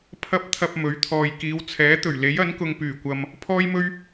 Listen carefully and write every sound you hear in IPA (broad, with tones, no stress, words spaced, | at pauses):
pʰɐ˥p̚t̪ʰɐ˧p̚ mɵ˨˥ɥt̪ʰɔː˨j kiː˨˧wt͡sʰɛː˨˥t̪ɵ˨˩ɥ le˨˥jɐ˨˥nkʊ˨ŋ pyː˨˩kʷɐ˨m | pʰɔː˥jmɵ˥ɥ